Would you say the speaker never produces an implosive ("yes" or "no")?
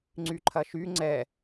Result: yes